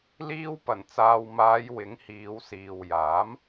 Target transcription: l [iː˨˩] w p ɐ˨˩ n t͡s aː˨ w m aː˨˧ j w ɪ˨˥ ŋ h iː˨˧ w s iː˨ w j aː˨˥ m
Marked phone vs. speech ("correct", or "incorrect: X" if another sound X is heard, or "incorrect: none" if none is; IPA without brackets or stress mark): incorrect: iː˧